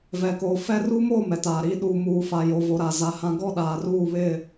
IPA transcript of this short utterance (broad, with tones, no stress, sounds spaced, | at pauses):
v ɛ˨ k oː˨ f ɛ˦ r u˦ m o˦˨ m ɛ˨ t aː˨ ɾ iː˦ ɗ u˨ m uː˨ f a˨ j o˨ v o˨ ɾ a˨ z a˨ h ã˨ ɡ ɔ˦˨ ɗ aː˨ r uː˦˨ β ɪ˦˨